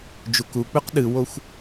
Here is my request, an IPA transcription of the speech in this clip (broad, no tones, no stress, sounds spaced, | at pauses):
d͡ʒ u k u k͡p ʉ q ɗ ɨ w o xʷ